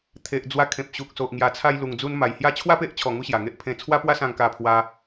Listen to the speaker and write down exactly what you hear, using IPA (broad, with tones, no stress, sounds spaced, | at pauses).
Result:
t̪ʰ e˨ ʔ d͡z w a˧ kʰ ẽ˨ p̚ ɕ u˨ k̚ s o˨ ʔ ŋ j a˨˩ t͡sʰ a˧ j l u˨˩ ŋ d͡z u˧ n m a˨˩ j h j a˦ t͡ɕʰ w a˥˧ p e˦ ʔ t͡ɕʰ ɔ˨˩ ŋ u˧ ɕ j a˨˩ ŋ e˦ ʔ pʰ ẽ˧ t͡sʰ w a˦ p w a˦ s ã˧ ŋ k a˧ pʰ w a˧